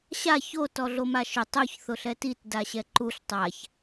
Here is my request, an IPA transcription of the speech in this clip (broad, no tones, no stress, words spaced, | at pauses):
ɕa ço tɔɮomaʃʊ tˤoç θʊɬɛtit daɕɛǃuɬ tˤaç